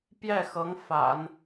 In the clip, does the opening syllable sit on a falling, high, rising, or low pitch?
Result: falling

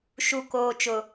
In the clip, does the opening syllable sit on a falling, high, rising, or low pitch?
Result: low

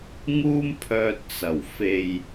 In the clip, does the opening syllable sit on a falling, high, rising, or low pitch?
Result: high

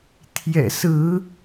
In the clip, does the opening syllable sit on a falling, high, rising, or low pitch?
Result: low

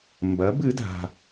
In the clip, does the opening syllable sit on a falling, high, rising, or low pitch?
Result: rising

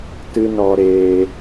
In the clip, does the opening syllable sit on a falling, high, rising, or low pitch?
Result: high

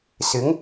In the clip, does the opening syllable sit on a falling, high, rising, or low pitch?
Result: rising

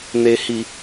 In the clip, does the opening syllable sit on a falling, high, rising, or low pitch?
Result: low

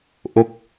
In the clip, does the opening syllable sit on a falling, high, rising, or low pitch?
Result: falling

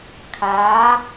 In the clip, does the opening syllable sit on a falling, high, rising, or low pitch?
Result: rising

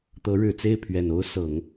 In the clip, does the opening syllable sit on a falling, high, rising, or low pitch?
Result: rising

